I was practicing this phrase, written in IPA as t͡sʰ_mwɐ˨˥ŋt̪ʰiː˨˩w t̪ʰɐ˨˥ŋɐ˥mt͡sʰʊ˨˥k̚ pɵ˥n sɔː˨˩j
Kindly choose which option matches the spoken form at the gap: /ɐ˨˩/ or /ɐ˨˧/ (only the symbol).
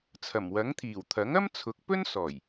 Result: ɐ˨˩